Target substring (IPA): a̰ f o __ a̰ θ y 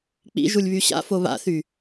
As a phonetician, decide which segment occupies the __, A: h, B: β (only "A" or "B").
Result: B